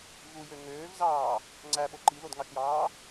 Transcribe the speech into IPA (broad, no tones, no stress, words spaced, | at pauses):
vujø ŋøːvzɑː | ŋ͡ǀæɓo ǃiðodŋɑʃjɑː